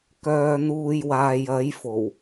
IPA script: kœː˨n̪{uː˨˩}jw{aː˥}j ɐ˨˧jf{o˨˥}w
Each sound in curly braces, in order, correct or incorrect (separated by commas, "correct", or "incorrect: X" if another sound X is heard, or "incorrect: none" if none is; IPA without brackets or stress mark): incorrect: uː˨, incorrect: aː˨, incorrect: o˨˩